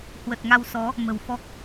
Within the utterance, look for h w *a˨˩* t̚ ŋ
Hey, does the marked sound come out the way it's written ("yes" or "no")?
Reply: no